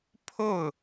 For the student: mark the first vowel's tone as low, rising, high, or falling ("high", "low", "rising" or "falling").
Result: falling